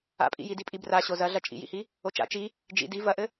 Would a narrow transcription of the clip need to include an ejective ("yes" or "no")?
yes